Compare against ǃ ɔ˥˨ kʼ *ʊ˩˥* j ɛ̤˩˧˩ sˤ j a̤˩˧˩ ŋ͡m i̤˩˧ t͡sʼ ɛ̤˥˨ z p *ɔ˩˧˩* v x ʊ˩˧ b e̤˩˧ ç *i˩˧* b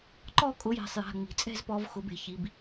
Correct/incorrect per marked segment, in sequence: correct, incorrect: ɔ˩˧, correct

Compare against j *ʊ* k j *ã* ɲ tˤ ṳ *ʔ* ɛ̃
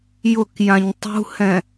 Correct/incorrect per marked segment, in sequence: correct, correct, incorrect: h

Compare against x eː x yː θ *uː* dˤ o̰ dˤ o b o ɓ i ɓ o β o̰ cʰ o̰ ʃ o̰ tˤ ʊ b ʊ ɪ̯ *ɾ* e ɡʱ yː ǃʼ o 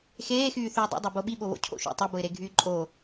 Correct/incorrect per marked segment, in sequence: incorrect: yː, correct

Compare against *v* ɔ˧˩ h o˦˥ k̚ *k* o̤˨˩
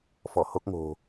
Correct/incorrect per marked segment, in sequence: incorrect: f, incorrect: ŋ

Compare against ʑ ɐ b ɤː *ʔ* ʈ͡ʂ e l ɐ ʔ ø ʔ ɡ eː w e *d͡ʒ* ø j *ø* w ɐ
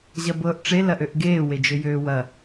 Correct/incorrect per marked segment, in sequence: correct, correct, incorrect: øː

